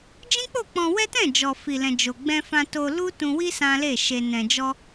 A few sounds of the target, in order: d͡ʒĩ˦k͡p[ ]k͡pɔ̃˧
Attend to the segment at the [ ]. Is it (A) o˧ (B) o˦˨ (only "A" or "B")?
B